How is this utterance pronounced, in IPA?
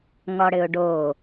ŋ ɔ ɽ ɘ ʊ̯ ɖ o

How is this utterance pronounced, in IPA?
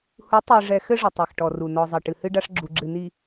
h u˨˦ tˤ i˨ ʐ ɛ˨ x ɘ˦ ʐ ɘ˨ tˤ ɛ˨ x ʈ ɔ˨ r u˨ n ɔ˨ zˤ ɐ˨ ʈ ɨ˨ h ɨ˦ ɖ a˦ ʂ ɡ͡ǁ u˨ ɡ͡ǁ ɨ˨ n i˨

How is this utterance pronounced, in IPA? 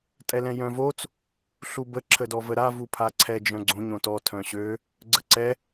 tʼ ɛ l ɛ̃ j œ̃ v o t͡s | ɬ u b ə ǁʰ ə d ɔ v ə ɾ a v u pʰ a ǀʰ ɛ d͡ʒ œ̃ ɡ͡ǀ õ ɲ õ t ɔ tʰ œ̃ ɕ ø | ɡ͡ǀ ə ǀ ɛ

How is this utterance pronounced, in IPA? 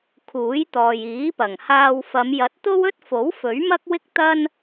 kʰ uː˨˥ j t̪ ɔː˨ j iː˨˥ p ɐ˨˩ ŋ h aː˧ w f ɐ˨˧ m j ɐ˨˥ t̚ t̪ o˥ w ɵ˥ t̚ f o˨˥ w f ɵ˨˥ ɥ m ɐ˥ k̚ w ɪ˥ k̚ t̪ ɐ˥ n

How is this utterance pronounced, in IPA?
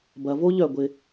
b ɐ˩ v o˥ ʎ œ˩ ɡʷ ɪ˩

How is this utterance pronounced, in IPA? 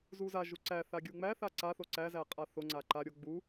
z u z a ʒ u ǀ æ θ a ɡʲ u ŋ͡m æ θ a ǀ a θ o ǀ æ z æ qʼ a θ o ŋ͡ǀ a ǃ a ɾʲ o ɡ͡b u

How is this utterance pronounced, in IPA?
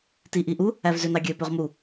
t i ʔ i ʔ u | æ v z ø n ɑ ɡʲ ø p ø ʁ m u

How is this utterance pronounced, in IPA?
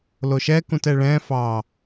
l o ʃ ɛ k ũ t ɛ ɭ ɛ̃ f ɑ

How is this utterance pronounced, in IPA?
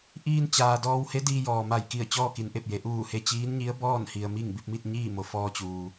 ʔ iː˧ n t͡ɕ aː˩ d ɔː˧ w h e˧˥ d iː˧ j ɔː˩ m a˧˩ j k i˧˩ ə̯ t͡ɕ ɔː˥˨ k i˩˧ n ʔ e˧˩ p̚ j e˩˧ ʔ uː˧˩ h e˧ t͡ɕ iː˧˥ n ɲ i˧˥ ə̯ b ɔː˥˨ n h i˩ ə̯ m i˥˨ ŋ b i˥˨ p̚ m i˥˨ t̚ ɲ iː˥˨ m o˩ f ɔː˧ t͡ɕ uː˩

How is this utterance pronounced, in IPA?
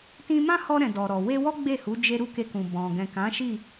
t ĩ˧ m ã˦ h ɔ˧ ɾ ɛ̃˨ d ɔ˨ ɾ ɔ˨ w e˧ w ɔ˦ ɡ͡b e˦˨ h u˨˦ d͡ʒ e˦ ɾ u˦˨ k e˧ k ũ˨ b ɔ̃˨ ɡ ɛ̃˨ k ã˨˦ ʃ i˦˨

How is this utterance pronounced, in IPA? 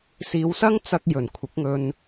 s iː˨˧ w s ɐ˥ ŋ t͡s ɐ˧ k̚ j ɵ˨˩ n kʷʰ ɪ˨˥ k̚ ŋ ɵ˧ n

